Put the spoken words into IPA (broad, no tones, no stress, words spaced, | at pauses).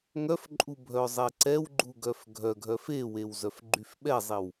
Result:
ŋœfǃʼu bʱœzˤeǀɛwɡ͡ǃu ɡœfɡʱœɡʱœf ewew zœfɡ͡ǃyfɓɛzˤiw